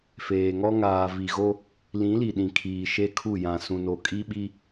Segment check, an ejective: present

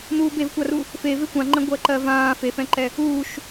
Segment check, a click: present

